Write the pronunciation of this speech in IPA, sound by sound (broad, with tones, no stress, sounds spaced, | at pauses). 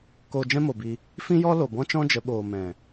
k oː˧ d͡ʒ ɛ̃˦ m o˨ b i˧ | f ĩ˦ j ɔ˦ l o˨ b ɔ̃˦ t͡ʃ ɔ̃˦ d͡ʒ ə˨˦ ɓ oː˨ m ɛ̃˨